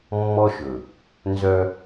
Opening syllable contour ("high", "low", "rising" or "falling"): high